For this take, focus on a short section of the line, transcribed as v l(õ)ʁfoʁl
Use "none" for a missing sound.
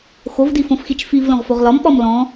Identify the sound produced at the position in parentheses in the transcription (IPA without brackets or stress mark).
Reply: õ